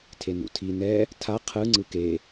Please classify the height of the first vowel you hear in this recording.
mid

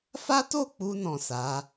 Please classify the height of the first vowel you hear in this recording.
low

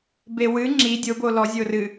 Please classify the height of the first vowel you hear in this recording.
mid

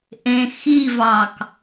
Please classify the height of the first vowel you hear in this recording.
mid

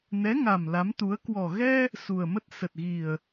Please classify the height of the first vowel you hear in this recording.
mid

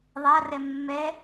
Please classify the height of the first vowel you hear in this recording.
low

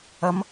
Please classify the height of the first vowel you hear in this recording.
low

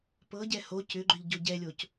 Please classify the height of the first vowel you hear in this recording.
mid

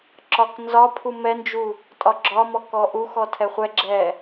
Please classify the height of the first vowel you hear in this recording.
low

